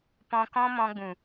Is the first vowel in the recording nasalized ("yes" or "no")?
yes